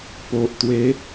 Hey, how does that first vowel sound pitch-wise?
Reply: low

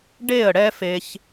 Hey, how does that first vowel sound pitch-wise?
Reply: falling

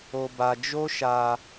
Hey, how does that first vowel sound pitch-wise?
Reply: low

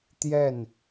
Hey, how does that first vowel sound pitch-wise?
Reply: falling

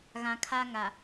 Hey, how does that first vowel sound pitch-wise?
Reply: low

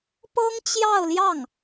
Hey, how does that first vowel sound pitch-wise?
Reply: high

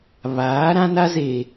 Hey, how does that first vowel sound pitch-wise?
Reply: rising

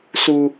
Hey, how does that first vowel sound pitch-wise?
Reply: high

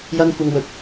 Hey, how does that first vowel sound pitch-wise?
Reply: high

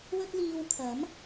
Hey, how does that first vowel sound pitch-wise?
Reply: high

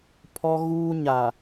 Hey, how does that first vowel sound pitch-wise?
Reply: high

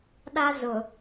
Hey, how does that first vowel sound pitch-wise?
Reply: high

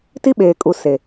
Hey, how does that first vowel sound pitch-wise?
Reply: high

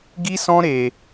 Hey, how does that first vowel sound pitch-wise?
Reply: high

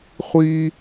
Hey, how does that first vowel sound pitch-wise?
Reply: high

